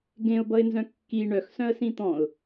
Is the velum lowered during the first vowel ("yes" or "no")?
yes